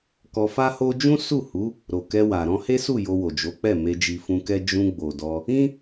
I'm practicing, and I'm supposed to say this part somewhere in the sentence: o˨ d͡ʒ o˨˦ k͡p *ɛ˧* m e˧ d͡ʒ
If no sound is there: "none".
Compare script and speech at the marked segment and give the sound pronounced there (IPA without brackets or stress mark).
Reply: ɛ˦˨